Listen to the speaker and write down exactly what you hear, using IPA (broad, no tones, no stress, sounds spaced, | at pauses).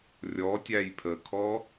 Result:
rʲ ɔ tʲ æ j pʰ ə kʰ ɔ